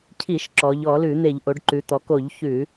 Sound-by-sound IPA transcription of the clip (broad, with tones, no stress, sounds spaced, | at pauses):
cʰ i˧˩˧ ʃ ǁ ɔ˩˧ ʎ ɔ˧˩˧ l ʉ˧˩˧ n̪ e˧˩˧ ʎ ʔ o˩˧ ɖ ǃ ʉ˩˧ t̪ ɔ˩˧ k o˧˩˧ ʎ ç ʉ˧˩˧